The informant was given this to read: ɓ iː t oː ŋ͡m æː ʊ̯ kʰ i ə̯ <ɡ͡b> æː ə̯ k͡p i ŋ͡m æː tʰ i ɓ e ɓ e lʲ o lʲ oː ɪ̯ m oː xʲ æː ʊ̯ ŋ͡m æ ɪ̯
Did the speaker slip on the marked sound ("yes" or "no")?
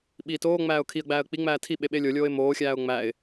no